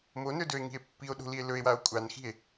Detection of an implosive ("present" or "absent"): present